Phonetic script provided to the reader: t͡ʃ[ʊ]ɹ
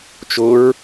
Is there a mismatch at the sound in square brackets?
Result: no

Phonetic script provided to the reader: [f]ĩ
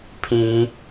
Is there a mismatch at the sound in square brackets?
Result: yes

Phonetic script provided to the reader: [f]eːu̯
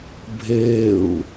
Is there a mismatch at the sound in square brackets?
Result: yes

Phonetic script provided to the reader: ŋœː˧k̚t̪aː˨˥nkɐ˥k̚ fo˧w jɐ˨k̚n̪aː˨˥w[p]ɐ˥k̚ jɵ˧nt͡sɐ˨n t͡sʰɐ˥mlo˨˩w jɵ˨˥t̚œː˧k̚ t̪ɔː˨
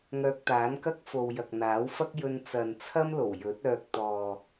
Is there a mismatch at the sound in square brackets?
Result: yes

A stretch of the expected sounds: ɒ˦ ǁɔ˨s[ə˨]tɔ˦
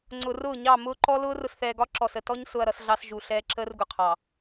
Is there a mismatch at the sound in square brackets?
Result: no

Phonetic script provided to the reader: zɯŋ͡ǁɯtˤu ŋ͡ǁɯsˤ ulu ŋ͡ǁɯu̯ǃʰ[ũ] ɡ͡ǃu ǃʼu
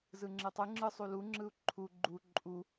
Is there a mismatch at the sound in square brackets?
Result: yes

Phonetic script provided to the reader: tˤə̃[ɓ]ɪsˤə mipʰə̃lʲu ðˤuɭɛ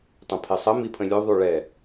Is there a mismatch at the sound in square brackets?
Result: yes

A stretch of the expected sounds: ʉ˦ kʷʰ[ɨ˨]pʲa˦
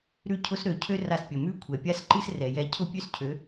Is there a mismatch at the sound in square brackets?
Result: yes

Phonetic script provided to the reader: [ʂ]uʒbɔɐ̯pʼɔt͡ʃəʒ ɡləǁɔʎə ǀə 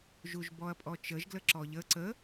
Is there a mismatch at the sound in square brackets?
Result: yes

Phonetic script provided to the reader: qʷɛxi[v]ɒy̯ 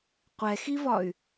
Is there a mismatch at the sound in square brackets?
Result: no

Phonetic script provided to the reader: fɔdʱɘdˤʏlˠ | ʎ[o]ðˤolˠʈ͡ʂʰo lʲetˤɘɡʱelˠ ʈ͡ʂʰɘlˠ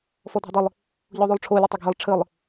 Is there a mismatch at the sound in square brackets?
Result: no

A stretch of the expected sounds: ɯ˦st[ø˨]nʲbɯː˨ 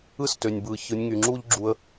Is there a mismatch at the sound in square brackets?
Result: no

